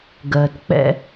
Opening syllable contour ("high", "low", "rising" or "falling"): low